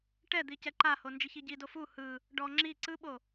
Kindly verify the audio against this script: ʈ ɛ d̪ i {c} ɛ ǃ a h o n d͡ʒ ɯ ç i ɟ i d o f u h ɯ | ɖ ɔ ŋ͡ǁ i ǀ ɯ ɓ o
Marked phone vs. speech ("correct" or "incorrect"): correct